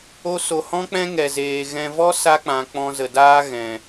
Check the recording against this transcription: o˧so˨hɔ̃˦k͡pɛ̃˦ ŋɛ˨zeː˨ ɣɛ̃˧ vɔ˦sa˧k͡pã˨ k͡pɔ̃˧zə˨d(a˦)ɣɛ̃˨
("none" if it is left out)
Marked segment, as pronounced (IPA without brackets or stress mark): aː˦